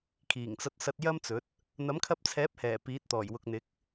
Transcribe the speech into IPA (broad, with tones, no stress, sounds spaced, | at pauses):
kʰ iː˨˩ ŋ t͡s ɐ˧ t̚ s ɐ˧ t̚ j ɐ˥ m t͡s ɵ˨˥ t̚ | n̪ ɐ˨˥ m kʰ ɐ˧ p̚ t͡sʰ ɛː˨˥ p̚ h ɛː˨˩ p iː˨˥ t̚ t̪ ɔː˨˩ j w ʊ˨ k̚ n̪ ɪ˨˥ k̚